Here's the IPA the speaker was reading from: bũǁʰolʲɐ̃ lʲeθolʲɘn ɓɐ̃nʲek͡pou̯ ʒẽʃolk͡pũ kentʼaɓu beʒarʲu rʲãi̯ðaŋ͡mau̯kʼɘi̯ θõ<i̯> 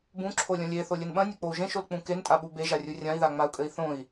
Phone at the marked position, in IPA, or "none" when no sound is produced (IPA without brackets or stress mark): i̯